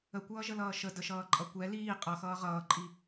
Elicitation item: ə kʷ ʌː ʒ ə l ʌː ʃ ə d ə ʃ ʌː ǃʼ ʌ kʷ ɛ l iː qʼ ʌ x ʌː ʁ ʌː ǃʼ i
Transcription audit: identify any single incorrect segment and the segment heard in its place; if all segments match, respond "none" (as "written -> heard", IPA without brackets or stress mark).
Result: none